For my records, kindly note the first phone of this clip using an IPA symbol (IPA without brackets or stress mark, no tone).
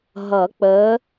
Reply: ɦ